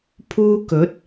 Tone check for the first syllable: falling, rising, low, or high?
high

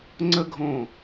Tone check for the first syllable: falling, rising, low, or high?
high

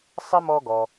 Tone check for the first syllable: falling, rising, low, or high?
high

